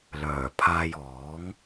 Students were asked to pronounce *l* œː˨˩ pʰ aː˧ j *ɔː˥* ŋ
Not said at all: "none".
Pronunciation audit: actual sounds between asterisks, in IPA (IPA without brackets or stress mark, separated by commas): l, ɔː˨˥